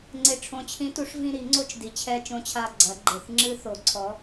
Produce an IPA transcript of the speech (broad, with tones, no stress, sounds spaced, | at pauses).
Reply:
ŋ͡ǀ e˨˩ ʈ͡ʂʰ õ˨˩ t͡ɕʰ ĩ˨˥ t u˨˩˦ ʂ v ĩ˦˨ ɾ i˨˩˦ ŋ͡ǀ o˦ t͡ʃ d i˨˩ t͡ɕʰ ɛ˦˨ t͡ʃ õ˦ t͡ɕʰ a˦˨ ɡ͡ǀ ɐ˨˩˦ ɡ͡ǃ e˨˩ θ ŋ͡ǁ ɨ˦ θ o˨˩˦ ǀʰ ɔ˨˥